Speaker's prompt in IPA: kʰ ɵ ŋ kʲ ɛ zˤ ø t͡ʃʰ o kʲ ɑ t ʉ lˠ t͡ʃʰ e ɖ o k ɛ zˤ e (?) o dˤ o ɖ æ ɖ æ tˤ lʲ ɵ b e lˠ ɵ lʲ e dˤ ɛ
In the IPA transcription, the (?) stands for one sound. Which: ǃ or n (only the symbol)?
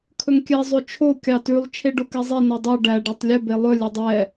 n